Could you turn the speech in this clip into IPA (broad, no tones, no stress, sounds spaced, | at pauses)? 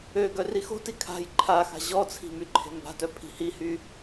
ø ɡ œ r i x o̤ t i kʰ a̤ j ǃʰ a x a̤ ʑ ɔ t͡sʰ i̤ m y ǃʰ e̤ m b a̤ t œ pʰ i̤ h i h y